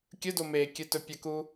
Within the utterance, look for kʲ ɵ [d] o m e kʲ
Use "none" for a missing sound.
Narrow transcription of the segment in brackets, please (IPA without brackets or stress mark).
d